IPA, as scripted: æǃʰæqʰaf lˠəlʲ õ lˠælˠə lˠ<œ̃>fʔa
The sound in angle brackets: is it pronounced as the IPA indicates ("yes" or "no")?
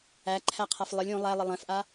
no